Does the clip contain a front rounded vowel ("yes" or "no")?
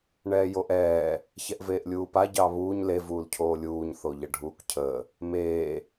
no